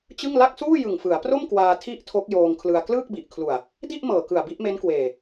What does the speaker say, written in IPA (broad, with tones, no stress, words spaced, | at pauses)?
t͡ɕɯ˥˩ŋ la˥˩k̚ suː˥˩jɯ˨˩ŋfɯ˩˦a̯pro˥˩m kwaː˧tʰi˥˩ʔtʰo˦˥k̚ joː˧ŋkʰlɯ˧a̯ klɯː˥˩k̚bi˨˩ʔkʰlu˨˩a̯ | di˥˩ʔmɤː˨˩kɯ˨˩a̯ bi˥˩ʔme˦˥nkweː˨˩